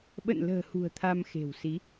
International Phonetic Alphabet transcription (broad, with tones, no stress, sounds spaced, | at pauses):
ɓ ə̰˧˨ n l ə̤ː˨˩ h ṳ˨˩ ə̯ t̪ʰ a˧ m x e̤˨˩ w s i˨˦